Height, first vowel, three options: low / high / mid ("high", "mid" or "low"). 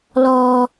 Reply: mid